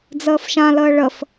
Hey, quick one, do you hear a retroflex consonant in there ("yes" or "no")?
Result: yes